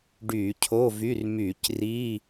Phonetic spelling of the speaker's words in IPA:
ɖ yː˧˩˧ cʰ o˧˥˧ v y˧˥˧ r m yː˧˩˧ c r i˧˥˧

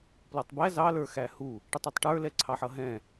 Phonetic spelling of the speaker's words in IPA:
p l ɔ tˤ b æ z ɑ l ə˞ x æ h u | ʈ ə tˤ u tˤ ʈ ə˞ l ɛ ǀʰ ɑ ħ ʌ ɦ ɛ̃

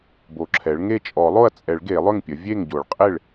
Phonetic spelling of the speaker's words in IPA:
b o˨˩˦ ǁʰ ɛ˩˥ ɭ ŋ e˥˩ t͡ʃʼ ɔ˨˩˦ lˠ o˥˩ ɐ̯ t͡sʼ ɛ˨˩˦ ɭ ɡ e˨˩˦ lˠ ʏ˥˩ ŋ pʲ ə˩˥ vʲ e˥˩ ŋ ɟ o˨˩˦ ɭ qʼ e˥˩ ɭ

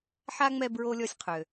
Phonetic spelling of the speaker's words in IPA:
ħ a˥ ŋ͡m ɛ˦ b ɹ o˥ lʲ ɔ˦ sʲ qʰ ø˨

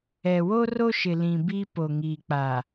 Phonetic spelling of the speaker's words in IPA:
ɛ˨ w o˦ r o˦ ʃ ɪ˨ l ĩ˨ b i˦ p o˨ ŋ iː˨ k͡p a˨

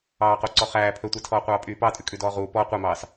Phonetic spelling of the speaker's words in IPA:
ɑː q o ǀ ɔ χ æː pʰ ɵ tʷ ɛ tʰ ɔː qʷ ɑː pʼ yː p ɑ tʼ ʉ kʼ ʉ d ɔː ʁ uː p ɔ qʷ e m ɑː s

